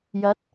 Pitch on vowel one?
rising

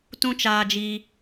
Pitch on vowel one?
high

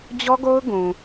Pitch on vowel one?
high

